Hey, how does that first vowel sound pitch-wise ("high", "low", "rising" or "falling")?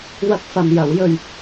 high